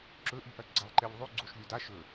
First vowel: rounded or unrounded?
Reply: rounded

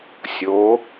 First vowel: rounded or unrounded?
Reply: rounded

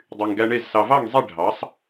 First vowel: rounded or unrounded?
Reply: rounded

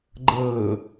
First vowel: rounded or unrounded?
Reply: unrounded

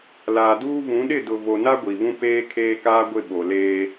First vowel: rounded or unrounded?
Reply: unrounded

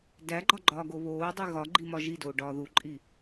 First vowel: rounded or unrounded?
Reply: unrounded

